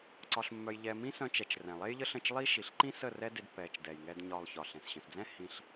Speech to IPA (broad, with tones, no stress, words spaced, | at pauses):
ǀɒ˧ɬmːœ˧jʎɛː˧ mĩ˦sœ̃˧t͡ʃɛ˨t͡ʃ rɛ̃˨lˠe˦jʎə˦ɬə̃˦˨t͡ʃ lˠi˦ ʃi˨ɬ ǃĩ˦sə˦˨ rɛ˦de˧dpːɛː˨t͡ʃ dɛ˨jŋɛ˧d ɲɒ˧lˠçɒ˨ɬɛ̃˨s ɕə̃˨sd͡zɛ̃˦ hĩ˧ɬ